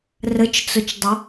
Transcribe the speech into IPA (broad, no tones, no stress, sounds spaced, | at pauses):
r ə t͡ʃ t͡s ʊ t͡ʃ dˤ ʊ